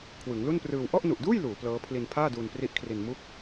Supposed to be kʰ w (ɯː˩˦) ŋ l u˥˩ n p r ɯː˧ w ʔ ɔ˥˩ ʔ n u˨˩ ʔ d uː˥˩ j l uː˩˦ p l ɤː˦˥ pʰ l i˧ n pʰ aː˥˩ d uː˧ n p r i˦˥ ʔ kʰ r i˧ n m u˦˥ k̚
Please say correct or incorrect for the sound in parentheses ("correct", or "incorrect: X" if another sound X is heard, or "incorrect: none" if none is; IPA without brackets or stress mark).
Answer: incorrect: ɯ˩˦